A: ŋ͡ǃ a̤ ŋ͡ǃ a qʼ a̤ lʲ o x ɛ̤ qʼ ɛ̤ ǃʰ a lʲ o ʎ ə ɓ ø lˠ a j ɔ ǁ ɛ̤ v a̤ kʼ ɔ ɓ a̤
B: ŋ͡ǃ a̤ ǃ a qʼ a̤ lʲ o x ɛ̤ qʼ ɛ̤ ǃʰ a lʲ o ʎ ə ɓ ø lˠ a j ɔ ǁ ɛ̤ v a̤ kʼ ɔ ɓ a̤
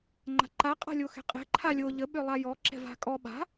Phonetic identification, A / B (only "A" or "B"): B